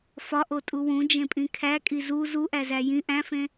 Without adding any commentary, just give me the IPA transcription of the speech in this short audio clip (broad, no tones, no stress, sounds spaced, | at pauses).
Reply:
f ɒ ʔ o tʼ u w ũ d͡ʒ ẽ pʼ ĩ kʰ æ kʼ i z u z u ʔ æ z æ j ĩ ʔ æ̃ f ẽ